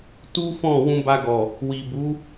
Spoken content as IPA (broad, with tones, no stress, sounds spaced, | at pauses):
t u˦ f ɔ̃˦˨ w ũ˧ b a˧ ɡ ɔ˨ | w i˨ b u˨˦